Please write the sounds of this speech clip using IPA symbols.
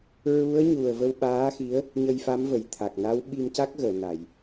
ɹ u˧˥ ə̯ ɲ u˨˩ ə̯ v ə˧ w ɓ aː˧˥ x i˧˥ ə̯ | ɲ ə˧ j f a˧˥ m v ə˨˩˨ j t̪ʰ a˨˩ k̚ n a˧˥ w ɓ i˧ m c a˦˥ k̚ ɣ əː˨˩˨ n a˨˩˨ j

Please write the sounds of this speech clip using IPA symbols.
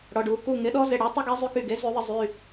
ɽ ɔ˩˧˩ ɖ u˨˩˦ k u˩˧˩ ŋ ɪ˩˥ ɗ ɔ˧˥ z ɪ˩˧˩ ɽ y˨˩˦ tˤ ɪ˧˥ ɡ e˩˥ zˤ y˩˥ k y˩˧˩ ɡ e˩˥ z y˨˩˦ ðˤ ɪ˧ zˤ y˩˧˩

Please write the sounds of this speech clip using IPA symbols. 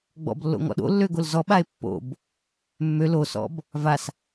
ɡ͡b ɔ̰ b lː o̰ ŋ ɔ̰ ɗ o̰ lː ø ɡ o l z ɔ ɓ a e̯ pː o̰ b | mː ø l o s ɔ̰ b | v a s

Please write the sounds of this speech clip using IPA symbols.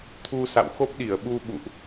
t̪ʰ u˧ s a̰˧˨ w x o˦˥ p̚ ɗ i˧˩ ə̯ ɓ u˧ ɓ ṵ˧˨ ʔ

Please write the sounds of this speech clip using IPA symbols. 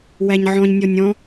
w æ ɲ ʕ ɔ̃ ɲ nʲ ɔ nʲ ɔ̃

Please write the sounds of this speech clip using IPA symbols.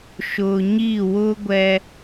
ʃ ʊ˨ ɲ i˦˨ w ʊ˦ ɡʷ ɛ˦

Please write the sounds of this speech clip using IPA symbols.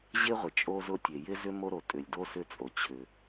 ʑ ɪ˥ ʁʷ ɪ˩ t͡ʃʼ o˥ z ʊ˥ tʲ e˩ j ɪ˥ z ʏ˥ m o˥ ɾ o˩ tʼ ʏ˩ lʲ d o˥ s ʏ˥ t͡sʼ o˩ t͡ɕʰ ʏ˩

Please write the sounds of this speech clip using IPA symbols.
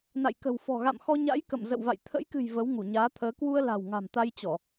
n a̰˧˨ j k ə̤˨˩ w f ɔ̤˨˩ ɣ a̰˧˨ m x ɔ˧ ɲ a̰˧˥ j k ə̰˧˨ m z ə̰˧˨ w v a̰˧˨ j t̪ʰ ə̰˧˥ j k ɨ̤˨˩ j v ə˨˦ w ŋ u˧˩ ɲ aː˨˦ t̪ʰ əː˨˦ k w u˧ ə̯ l a̤˨˩ w ŋ a̤˨˩ m t̪ a˧ j t͡ɕ ɔ˧˩˨

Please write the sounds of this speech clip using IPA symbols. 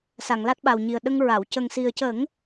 s a˨˩˨ ŋ l a˦˥ t̚ ɓ a˨˩ w ɲ i˨˩ ə̯ ɗ ə˧ ŋ ɹ a˨˩˨ w c ə˨˩ ŋ s i˨˩ ə̯ c ə˨˩˦ ŋ

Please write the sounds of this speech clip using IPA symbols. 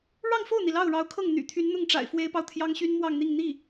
ɻ ɑ˥˧ ŋ f o˥˩ ʊ̯ n̪ i˩ l ɑ˥˩ ʊ̯ ɻ ɑ˧˥ ʊ̯ kʰ ɤ˥˩ ŋ n̪ y̰˨˩ t̪ʰ y˧˥ n n̪ ʊ˥˩ ŋ ʈ͡ʂ a̰˨˩ ɪ̯ f w e˥ ɪ̯ p ɑ˨ ʊ̯ t̪ʰ j ɑ˥ ŋ ɕ y˥ n m w ɑ˥˧ ŋ n̪ i˥˧ ŋ n̪ i˥˩

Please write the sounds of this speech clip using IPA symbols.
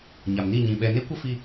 ɲ a˨ m n i˦˨ ɲ ĩ˨ ɓ ɛ˧ n e˦ kʷ ə˦ f i˧

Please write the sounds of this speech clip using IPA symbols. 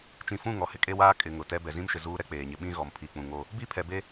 t͡ʃ ĩ˨ f ũ˦˨ ŋ ɔ˨ h ɪ˦ kʼ e˦ w aː˦ kʼ ɪ˨ ŋ ʊ˨ t ɛ˦ b ɛ˨ z ĩ˦ m ʃ ɪ˨ z uː˦ ɾ ɛ˦ k͡p eː˨ ɲ ɪ˨ ɓ ĩ˦ ɣ ɔ˨ m pʰ i˨ k͡p ũ˨ ŋ o˦ | b i˦˨ pʰ ɛ˨ b e˦

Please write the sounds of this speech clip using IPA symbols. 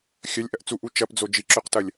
xʲ ɐ lʲ ʔ ɐ ʔ t͡s u ʔ u t͡ʃ ɐ p d͡z o d͡ʒ i ǁ ø q t ɐ lʲ

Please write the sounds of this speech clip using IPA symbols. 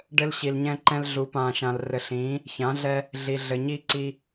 ɖ ɘ˦ l ɕ i˨ l ɲ ɛ̃˦ ǃ ɛ̃˦ l ɮ u˨˦ p ãː˨ ʃ ã˨ l r ɘ˨ ɬ ĩː˨˦ | ç ã˨˦ ɮ ɛ˦ | ɮ i˨ ɮ ɘ˨ ɲ i˦ ǀ i˦

